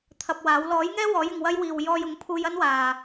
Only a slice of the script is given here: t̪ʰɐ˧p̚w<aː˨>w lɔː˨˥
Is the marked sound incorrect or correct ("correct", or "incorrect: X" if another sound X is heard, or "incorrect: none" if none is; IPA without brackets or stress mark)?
incorrect: aː˨˥